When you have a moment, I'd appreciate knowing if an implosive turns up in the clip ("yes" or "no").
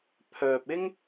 no